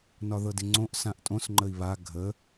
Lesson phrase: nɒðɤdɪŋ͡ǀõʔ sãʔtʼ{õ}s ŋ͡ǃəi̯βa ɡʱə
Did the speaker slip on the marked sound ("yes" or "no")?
no